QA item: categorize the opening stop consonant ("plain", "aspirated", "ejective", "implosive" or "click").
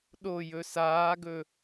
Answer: implosive